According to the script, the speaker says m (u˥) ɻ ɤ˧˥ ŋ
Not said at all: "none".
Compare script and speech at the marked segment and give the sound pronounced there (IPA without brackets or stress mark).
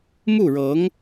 u˥˩